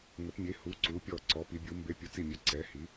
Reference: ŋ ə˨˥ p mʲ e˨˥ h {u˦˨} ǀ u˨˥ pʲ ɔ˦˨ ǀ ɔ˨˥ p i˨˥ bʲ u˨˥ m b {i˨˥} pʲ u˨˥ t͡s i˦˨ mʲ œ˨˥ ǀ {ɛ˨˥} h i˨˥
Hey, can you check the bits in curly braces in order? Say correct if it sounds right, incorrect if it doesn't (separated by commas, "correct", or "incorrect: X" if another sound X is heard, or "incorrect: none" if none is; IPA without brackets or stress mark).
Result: incorrect: u˨˥, incorrect: e˨˥, correct